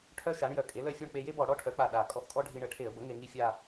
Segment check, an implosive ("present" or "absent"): present